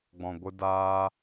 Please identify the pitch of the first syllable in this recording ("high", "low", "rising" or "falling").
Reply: low